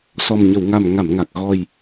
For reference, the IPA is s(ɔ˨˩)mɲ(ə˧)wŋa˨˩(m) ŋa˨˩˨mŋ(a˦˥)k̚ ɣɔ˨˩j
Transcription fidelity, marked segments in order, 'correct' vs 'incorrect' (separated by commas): correct, incorrect, correct, incorrect